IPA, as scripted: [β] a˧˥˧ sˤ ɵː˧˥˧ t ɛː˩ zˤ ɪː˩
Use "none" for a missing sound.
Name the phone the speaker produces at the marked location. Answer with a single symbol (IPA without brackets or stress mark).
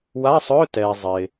w